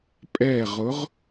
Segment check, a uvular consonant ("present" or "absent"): present